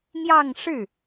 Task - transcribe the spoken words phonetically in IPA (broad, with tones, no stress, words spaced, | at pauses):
n̪jɑ˥˧ŋʂɻ̩˥˩